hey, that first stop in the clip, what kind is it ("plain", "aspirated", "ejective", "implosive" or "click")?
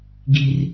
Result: plain